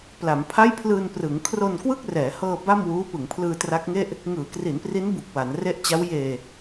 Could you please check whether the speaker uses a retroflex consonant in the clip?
no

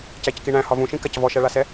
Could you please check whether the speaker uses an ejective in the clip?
no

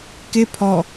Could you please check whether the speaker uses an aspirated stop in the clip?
yes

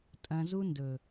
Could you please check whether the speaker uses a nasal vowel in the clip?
yes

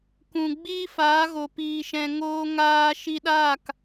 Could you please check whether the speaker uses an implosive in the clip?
yes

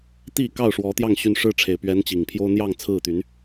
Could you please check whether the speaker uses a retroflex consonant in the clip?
yes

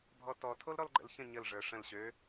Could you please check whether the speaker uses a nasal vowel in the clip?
yes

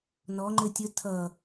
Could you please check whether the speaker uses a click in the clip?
yes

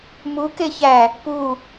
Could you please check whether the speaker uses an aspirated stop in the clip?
no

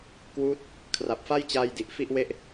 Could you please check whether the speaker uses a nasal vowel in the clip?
no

